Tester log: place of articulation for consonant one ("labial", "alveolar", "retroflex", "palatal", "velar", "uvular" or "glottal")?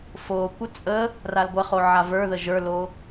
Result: labial